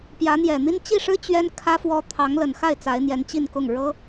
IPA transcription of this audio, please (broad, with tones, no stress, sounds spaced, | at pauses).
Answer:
p j ä˧˥ n̪ j ɛ˨˩ n̪ i˥ n t͡ɕ i˥˩ ʂ ɻ̩˥ t͡ɕ ɥ ɛ˥ n kʰ ä˥ f w ɔ˥ t̪ʰ ɑ˧˥ ŋ l ə˨˩ n x a˥˩ ɪ̯ t͡s a˧˥ ɪ̯ n̪ j ɛ˧˥ n t͡ɕ i˥˧ n k ʊ˥˩ ŋ ɻ ɤ˥